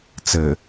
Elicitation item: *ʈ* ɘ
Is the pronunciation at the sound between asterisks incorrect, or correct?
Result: incorrect: t͡s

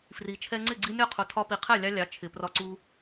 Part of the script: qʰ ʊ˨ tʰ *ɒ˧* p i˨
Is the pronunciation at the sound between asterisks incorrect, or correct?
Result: correct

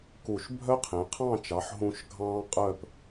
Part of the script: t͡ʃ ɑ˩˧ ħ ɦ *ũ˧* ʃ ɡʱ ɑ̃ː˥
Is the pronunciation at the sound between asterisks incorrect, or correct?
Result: correct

